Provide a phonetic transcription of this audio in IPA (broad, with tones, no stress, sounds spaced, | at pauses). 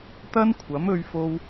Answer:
t̪ ɐ˥ n kʷʰ ɐ˨˥ m ɵ˧ ɥ f o˧ w